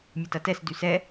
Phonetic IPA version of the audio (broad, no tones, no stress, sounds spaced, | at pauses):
mʲ ə t ɐ t ɛ s d y s ɛ